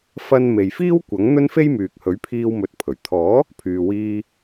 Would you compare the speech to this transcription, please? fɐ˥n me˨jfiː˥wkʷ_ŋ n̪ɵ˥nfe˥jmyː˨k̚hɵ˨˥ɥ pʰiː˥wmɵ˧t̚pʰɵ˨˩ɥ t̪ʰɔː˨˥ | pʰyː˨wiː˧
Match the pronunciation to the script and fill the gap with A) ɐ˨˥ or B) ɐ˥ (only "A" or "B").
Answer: A